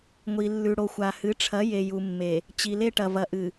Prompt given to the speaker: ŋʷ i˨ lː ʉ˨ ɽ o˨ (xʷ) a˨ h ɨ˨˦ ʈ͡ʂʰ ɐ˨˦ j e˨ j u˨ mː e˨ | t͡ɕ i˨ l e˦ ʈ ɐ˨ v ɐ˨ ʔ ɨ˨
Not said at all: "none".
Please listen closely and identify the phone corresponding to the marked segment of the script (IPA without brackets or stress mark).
xʷ